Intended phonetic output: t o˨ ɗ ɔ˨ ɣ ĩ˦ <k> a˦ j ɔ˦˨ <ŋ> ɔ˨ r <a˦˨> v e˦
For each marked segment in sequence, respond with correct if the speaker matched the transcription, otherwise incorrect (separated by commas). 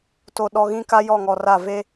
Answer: correct, correct, correct